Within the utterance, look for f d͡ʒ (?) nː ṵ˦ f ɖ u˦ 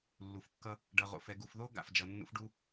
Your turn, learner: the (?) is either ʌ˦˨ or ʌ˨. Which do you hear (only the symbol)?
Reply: ʌ˨